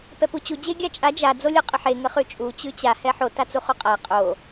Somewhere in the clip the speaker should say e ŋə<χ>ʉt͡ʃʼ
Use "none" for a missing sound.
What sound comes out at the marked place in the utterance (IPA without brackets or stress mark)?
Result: χ